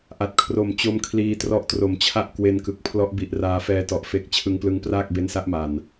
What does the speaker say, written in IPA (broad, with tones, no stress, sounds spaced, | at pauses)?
ʔ a˨˩ t̚ kʰ r o˨˩ m t͡ɕ o˧ m kʰ l iː˧ t r ɔ˦˥ ʔ t r o˨˩ m t͡ɕʰ a˥˩ ʔ k w e˧ n k ɯ˨˩ k̚ pʰ l ɔ˦˥ ʔ b i˨˩ ʔ r aː˧ f ɛː˧ t ɔ˨˩ ʔ f e˨˩ k̚ t͡ɕʰ ɯ˧ ŋ p l ɯ˦˥ ŋ p r aː˥˩ k̚ b e˦˥ n s a˦˥ ʔ m a˨˩ n